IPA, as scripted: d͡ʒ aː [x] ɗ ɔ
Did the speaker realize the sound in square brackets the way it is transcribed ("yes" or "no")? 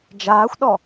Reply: no